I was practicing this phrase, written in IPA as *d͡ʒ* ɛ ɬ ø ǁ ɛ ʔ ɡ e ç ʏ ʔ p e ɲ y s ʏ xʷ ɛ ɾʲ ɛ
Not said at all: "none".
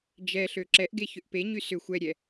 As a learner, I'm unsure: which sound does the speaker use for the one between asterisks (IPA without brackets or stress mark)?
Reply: d͡ʒ